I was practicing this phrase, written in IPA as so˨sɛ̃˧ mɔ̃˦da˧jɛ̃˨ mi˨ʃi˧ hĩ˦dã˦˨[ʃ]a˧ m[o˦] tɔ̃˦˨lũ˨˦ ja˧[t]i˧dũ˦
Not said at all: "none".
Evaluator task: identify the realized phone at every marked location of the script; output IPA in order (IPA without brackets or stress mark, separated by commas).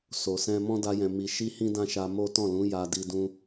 ʃ, o˦, d